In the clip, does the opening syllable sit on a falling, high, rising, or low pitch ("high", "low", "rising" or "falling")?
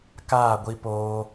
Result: falling